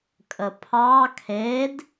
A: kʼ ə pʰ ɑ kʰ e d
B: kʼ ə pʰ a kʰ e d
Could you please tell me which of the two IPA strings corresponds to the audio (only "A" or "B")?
A